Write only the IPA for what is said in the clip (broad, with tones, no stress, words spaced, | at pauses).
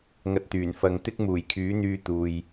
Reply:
ŋɐ˧t̚t̪yː˨˩n fɐ˨ŋt̪ɪ˥k̚ muː˨˩jkʰyː˨˥ n̪yː˧ t̪uː˨j